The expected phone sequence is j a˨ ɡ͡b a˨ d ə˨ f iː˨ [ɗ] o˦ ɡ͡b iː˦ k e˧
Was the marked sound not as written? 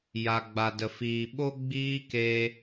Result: yes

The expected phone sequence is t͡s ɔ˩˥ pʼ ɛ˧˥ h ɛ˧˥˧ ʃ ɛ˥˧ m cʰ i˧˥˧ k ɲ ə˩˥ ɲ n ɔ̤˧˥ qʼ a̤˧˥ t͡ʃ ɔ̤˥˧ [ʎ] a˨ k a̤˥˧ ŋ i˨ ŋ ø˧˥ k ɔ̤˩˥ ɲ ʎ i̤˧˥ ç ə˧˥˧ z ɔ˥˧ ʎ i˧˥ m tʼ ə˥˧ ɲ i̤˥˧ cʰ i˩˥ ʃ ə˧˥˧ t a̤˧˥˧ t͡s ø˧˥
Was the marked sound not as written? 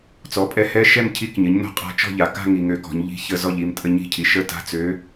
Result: no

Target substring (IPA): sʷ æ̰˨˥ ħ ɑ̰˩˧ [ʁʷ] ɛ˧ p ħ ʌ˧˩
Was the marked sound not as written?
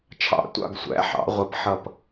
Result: no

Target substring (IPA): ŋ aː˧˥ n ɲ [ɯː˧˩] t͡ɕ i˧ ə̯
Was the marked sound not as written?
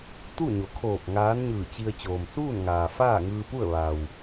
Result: no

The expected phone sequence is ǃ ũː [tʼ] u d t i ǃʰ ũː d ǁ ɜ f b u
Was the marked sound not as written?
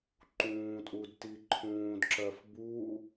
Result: no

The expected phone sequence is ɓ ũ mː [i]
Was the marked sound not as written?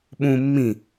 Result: yes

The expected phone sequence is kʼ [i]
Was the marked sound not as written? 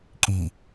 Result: no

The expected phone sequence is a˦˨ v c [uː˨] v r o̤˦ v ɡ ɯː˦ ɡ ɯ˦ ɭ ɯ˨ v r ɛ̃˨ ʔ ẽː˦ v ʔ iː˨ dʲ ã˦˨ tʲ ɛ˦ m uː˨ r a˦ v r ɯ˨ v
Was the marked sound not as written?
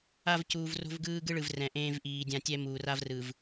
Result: no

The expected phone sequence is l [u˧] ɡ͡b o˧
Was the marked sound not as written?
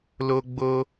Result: yes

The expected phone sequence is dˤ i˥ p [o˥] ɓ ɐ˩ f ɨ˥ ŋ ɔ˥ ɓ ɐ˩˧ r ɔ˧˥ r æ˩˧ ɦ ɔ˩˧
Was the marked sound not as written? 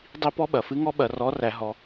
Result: yes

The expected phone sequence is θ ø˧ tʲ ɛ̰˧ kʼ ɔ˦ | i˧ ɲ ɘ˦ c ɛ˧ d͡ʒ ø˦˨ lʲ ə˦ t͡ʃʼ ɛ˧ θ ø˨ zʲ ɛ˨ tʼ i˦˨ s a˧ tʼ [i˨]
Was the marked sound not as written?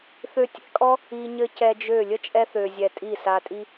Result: yes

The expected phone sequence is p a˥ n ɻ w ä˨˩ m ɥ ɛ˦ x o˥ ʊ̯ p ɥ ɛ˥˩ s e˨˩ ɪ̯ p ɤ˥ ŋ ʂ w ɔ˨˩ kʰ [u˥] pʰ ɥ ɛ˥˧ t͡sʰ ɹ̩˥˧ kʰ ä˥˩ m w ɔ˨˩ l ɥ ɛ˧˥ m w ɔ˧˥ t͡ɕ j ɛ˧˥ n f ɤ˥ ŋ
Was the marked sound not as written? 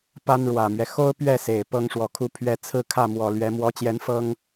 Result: yes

